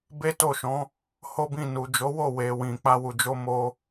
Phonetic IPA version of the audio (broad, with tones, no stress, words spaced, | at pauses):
be˦to˦˨ʃɔ̃˨˦ | ho˦bĩ˦˨ nu˨d͡ʒo˨˦wo˦˨ we˨wĩ˨ k͡pa˧wu˨d͡ʒo˧ mo˧